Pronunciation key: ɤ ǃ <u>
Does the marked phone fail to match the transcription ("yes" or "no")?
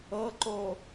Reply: yes